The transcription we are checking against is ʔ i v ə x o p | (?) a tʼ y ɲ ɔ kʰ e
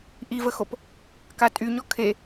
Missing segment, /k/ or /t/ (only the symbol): k